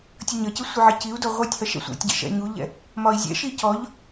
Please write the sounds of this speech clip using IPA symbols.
tʲ ʌ ɲ ʌ c ɪ sʷ ɪ ʕ ɪ c i u̯ d ɔ ʁʷ ɛ tʲ h ʌ ʃ ɛ̰ sʷ æ̰ tʲ ɟ ɛ̰ ʃ ɛ̰ ɲ u ʎ ɛ̰ | m ɒ i̯ zʲ ɛ̰ ʃ i c ɔ ʎ

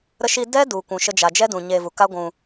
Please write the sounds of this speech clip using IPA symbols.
ɾ ə˧ ʃ i˧ d ɛ˦ d u˨ kʷ ũ˨ ʃ ə˧ d͡ʒ a˨ d͡ʒ ɛ˦ d ũ˨ ɲ e˧ v u˨ k a˦ ɡʷ ũ˧

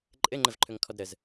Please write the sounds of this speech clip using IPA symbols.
ǃʼ ɘ ŋ͡ǃ ə v ǃʰ ɵ ŋ kʰ ɔ d ɾ ə z

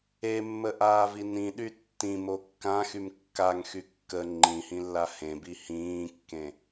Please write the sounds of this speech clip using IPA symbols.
e mː ə ʔ aː v i n ĩ ɗ y tː ĩ m o kː ã x y m kː a ŋ x y kː ə ŋ͡ǃ ĩ h ĩ lː a h ẽ b i h ĩː kː ẽ

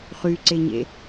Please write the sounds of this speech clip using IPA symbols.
χ y ǀ e ɲ ḛ

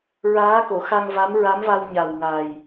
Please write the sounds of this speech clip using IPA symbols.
ɹ aː˧˥ k o˨˩˨ x a˧ ŋ v a˧˥ m ɹ a˧˥ m v a˧ w ɲ a˨˩ w ŋ a˨˩ j

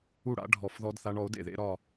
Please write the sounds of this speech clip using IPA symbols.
u˥˩ ɽ a̰˦˥ ɖʱ ɔ˧˩ f ð ɔ˦˥ d θ a˦˥ ɳ ɔ˩˥ o̯ d ḛ˥˩ ð ḛ˦˥ ɾ ɒ˥˧

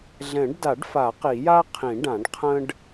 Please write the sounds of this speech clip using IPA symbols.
ɮ ɛ̃˨˩˦ ɖ d a˨˩˦ ɖ f a˨˩˦ q i˨˩˦ j a˥ qʰ ĩ˨˩˦ ɖ ã˨˩˦ ɖ qʰ ə̃˥ ɖ

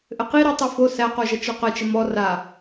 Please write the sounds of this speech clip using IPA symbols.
ʔ ɘ q i ɾ i tˤ i f o s æ q o ʒ ʌ t͡ʃ ɔ q ə t͡ʃ ə m ɔ r a

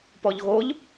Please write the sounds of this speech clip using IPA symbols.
p ɔ ʎ ɣ o ʎ

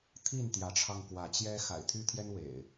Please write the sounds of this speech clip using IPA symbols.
t̪ʰ i˥˨ n t̪ j ä˨˦ ʈ͡ʂʰ ɑ˧ ŋ k w ä˨˦ t͡ɕ j ɛ˦ x a̰˨˩ ɪ̯ t̪ʰ y˦ t̪ʰ j ɛ˦ n w ḛ˨˩ ɪ̯

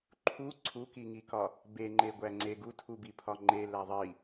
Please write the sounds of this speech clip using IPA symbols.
ǃʰ u ǀʰ u k i ŋ i k ɒ | b e ŋ͡ǃ e ɡʷ æ ŋ͡ǀ e ɡ u tʰ u b i pʰ ɒ ŋ͡ǃ e l æ ðˤ i

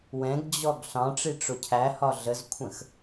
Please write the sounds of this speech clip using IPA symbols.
w ɛ̃ ɡ d͡ʑ ɔ ɡ ɬ ɑ̃ ʈ͡ʂ i ʈ͡ʂ ʊ cʰ æ h ɒ ɮ ə z kʷʰ ə̃ x

